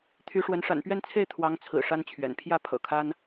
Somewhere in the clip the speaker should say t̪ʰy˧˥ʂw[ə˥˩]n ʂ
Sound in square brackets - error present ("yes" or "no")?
yes